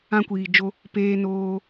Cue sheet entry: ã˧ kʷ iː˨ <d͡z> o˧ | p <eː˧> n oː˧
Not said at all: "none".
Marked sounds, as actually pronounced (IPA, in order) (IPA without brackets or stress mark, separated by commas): d͡ʒ, eː˧